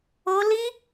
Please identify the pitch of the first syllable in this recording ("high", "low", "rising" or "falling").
high